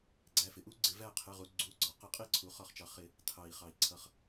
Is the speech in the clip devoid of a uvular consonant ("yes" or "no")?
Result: no